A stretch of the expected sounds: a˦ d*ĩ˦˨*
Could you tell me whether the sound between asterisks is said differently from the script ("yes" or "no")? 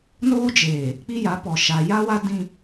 yes